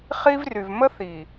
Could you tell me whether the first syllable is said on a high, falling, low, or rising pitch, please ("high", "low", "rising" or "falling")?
high